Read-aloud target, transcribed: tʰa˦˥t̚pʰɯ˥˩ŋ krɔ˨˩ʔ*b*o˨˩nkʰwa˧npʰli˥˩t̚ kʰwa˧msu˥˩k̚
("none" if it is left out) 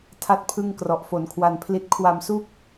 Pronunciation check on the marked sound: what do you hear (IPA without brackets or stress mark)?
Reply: f